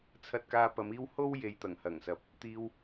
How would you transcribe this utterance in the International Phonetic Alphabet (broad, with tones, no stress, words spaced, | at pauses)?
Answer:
t͡sʰɐ˧t̚kaː˧ pɐ˨˧miː˧w ho˥w je˨jt̪ɐ˨˩ŋhɐ˨˩ŋsɐ˨˥p̚ | t̪iː˧w